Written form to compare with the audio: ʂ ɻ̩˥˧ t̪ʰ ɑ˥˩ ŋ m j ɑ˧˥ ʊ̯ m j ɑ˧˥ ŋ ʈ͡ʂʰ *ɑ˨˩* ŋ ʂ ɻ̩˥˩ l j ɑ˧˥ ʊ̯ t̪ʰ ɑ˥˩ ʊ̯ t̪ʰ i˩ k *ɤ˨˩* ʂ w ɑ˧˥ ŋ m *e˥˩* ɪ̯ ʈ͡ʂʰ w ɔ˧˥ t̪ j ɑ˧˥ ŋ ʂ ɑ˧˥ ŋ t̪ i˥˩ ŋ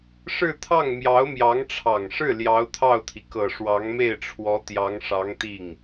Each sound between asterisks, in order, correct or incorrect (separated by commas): correct, correct, correct